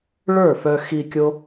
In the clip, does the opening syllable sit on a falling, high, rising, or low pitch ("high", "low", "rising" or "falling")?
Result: falling